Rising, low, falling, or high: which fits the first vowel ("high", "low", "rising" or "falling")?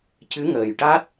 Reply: rising